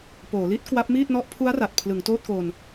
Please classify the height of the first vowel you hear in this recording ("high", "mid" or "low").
mid